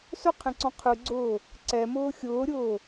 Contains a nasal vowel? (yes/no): yes